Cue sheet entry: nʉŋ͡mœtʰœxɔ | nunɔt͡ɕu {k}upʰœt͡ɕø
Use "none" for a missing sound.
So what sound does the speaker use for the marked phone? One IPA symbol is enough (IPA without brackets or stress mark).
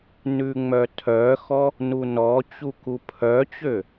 k